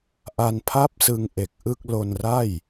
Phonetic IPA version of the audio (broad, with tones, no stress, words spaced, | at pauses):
ʔa˧npʰa˥˩p̚sɯ˧ŋ ʔe˨˩k̚ʔɯ˥˩k̚ lo˧nra˥˩j